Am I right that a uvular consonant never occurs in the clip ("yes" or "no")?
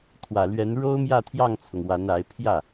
yes